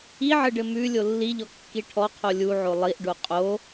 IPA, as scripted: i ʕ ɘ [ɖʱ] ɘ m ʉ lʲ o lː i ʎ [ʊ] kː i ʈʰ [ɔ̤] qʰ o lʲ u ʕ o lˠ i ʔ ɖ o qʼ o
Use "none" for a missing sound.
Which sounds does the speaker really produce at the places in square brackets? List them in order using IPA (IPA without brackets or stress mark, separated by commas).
ɖ, ɔ, ɔ